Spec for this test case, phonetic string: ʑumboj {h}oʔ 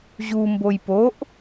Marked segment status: incorrect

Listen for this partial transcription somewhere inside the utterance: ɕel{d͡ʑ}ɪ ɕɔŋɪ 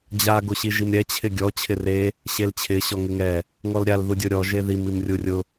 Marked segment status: incorrect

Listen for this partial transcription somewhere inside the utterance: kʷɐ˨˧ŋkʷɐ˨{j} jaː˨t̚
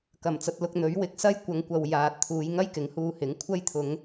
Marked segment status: incorrect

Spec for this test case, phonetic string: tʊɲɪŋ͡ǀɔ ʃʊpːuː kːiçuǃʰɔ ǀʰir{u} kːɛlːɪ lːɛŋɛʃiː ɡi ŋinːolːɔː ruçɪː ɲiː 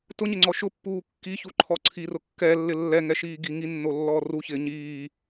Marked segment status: incorrect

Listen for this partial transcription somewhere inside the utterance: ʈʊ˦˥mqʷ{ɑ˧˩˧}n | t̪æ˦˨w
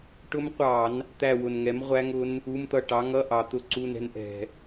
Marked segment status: correct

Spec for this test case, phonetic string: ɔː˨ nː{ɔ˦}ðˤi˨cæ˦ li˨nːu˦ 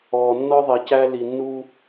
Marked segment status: correct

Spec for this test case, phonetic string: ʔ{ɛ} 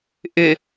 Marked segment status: incorrect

